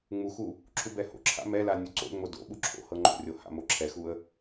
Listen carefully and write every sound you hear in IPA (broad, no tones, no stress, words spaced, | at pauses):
ŋ͡muxu | ǁʰubɛho̰ǁʰa̰ mɛla nʲuǀo̰ŋ͡mo do̰ɓu ǁʰo̰hɤ ŋ͡ǃo̰rʲo ha̰moǁʰɛxuə̯